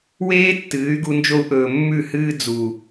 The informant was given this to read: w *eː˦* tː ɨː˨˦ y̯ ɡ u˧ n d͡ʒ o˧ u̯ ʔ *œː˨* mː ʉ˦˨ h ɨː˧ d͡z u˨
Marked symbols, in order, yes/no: yes, no

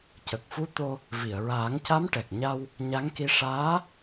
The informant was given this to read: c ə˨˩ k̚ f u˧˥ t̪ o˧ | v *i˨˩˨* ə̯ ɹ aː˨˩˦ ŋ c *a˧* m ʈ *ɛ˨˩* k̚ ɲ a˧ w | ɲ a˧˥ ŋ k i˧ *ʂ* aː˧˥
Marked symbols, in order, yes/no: yes, no, yes, yes

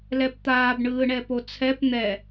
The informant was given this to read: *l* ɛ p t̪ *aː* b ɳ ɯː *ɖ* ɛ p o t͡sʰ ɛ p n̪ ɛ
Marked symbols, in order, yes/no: yes, yes, no

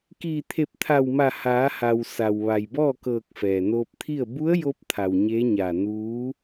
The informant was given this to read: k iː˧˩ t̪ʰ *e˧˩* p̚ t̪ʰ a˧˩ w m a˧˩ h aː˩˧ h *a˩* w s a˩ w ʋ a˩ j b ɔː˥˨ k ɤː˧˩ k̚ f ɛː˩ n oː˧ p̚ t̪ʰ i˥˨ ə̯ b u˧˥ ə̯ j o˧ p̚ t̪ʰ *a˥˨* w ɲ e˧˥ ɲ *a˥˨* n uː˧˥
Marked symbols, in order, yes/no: yes, yes, no, no

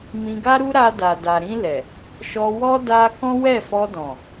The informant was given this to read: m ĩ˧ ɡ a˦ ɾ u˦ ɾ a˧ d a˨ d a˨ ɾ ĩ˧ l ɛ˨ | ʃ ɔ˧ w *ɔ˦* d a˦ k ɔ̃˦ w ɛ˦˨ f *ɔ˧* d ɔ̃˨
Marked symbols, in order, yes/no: yes, yes

